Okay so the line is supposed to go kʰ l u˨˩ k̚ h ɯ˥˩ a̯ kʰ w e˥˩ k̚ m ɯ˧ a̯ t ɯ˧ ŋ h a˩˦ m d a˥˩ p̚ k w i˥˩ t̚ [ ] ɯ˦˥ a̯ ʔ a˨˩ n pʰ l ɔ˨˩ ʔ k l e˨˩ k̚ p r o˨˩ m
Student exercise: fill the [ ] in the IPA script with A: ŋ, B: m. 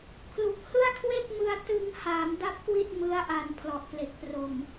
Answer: B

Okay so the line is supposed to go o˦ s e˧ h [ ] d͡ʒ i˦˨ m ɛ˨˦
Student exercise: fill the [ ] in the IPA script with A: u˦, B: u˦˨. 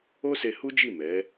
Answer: A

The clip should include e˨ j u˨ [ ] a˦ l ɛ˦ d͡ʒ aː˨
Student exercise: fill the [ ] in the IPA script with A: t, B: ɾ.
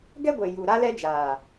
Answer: B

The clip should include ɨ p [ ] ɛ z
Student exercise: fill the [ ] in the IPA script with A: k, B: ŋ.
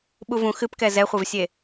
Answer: A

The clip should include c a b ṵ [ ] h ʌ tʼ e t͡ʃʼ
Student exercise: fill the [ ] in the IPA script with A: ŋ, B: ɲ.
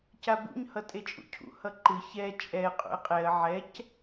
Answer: B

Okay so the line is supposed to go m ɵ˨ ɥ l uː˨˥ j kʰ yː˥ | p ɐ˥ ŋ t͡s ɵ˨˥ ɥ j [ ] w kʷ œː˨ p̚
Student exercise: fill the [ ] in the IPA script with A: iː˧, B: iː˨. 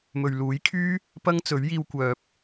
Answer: A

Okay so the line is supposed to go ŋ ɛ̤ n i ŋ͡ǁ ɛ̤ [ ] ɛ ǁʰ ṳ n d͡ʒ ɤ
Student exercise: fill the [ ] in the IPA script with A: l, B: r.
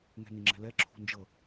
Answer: A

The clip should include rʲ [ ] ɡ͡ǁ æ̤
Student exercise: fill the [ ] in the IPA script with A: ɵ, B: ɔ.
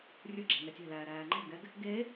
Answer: A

